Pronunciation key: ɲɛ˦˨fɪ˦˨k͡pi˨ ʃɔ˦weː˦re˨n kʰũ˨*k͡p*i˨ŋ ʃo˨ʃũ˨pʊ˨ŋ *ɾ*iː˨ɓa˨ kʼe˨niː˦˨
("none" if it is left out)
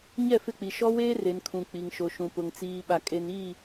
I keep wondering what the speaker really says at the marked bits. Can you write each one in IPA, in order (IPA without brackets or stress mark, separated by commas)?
k͡p, t͡s